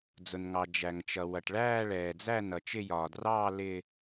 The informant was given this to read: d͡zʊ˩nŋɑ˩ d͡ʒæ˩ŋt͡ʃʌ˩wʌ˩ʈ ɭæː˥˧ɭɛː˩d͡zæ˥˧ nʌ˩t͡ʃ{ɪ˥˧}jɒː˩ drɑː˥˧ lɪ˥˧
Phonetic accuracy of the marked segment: correct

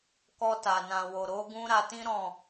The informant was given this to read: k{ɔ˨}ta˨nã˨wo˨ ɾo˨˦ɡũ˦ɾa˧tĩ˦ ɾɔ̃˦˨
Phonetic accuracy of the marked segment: incorrect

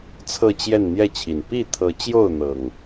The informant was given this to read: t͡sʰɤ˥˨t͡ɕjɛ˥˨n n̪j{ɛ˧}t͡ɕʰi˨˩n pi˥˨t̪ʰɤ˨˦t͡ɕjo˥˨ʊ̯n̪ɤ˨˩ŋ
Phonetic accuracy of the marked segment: incorrect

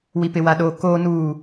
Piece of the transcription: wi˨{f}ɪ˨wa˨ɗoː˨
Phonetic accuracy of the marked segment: incorrect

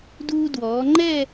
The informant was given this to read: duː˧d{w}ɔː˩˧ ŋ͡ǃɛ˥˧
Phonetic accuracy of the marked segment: correct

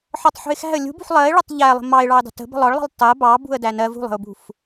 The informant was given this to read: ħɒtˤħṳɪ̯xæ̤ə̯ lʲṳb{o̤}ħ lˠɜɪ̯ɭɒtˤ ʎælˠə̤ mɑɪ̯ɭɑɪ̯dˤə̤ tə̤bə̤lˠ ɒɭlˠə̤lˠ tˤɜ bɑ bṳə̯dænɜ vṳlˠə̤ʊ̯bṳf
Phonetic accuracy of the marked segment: incorrect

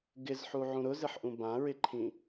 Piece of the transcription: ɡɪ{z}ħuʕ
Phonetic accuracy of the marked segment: correct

